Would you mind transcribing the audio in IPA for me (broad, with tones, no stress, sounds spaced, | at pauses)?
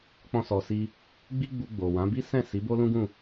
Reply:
k͡p ɔ̃˦ s ɔ˧ s i˦ | ɡ͡b i˦ ɡ͡b u˧ ɡ͡b o˨ w ã˨˦ b i˦ s ɛ̃˦˨ s i˨˦ b o˦ l ũ˦ ɡ ũ˦˨